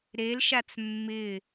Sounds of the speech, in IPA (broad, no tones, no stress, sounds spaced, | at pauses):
ɾ e l ʃ a t͡s mː ɪ